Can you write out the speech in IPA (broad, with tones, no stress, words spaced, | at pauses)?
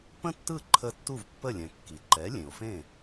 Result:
pə̃˥tːɯ˥˩ǃʰə˧ tːu˥˩vpːə˥˩lʲɛ̃˩ kːi˩ ǃɛ˩˥lʲẽ˩o̯fẽ˥˩